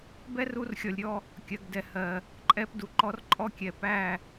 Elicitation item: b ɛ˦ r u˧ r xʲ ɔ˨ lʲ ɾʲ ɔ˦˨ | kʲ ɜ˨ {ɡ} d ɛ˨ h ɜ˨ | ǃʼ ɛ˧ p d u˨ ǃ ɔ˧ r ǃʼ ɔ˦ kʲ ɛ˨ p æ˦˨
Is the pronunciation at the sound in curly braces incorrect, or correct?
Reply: correct